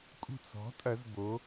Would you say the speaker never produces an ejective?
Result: no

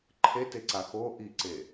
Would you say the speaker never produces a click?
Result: no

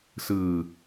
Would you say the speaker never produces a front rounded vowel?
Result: yes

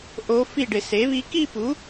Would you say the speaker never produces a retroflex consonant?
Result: no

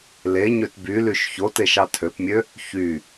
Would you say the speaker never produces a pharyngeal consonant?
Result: yes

